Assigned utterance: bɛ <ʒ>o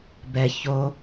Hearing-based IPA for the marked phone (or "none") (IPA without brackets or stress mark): ç